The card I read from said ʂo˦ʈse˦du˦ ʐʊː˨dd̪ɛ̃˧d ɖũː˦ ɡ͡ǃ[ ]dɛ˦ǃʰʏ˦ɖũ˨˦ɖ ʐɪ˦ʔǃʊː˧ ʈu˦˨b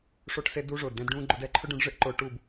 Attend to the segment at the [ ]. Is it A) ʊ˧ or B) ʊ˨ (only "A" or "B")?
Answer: A